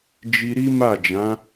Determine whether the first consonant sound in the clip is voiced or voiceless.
voiced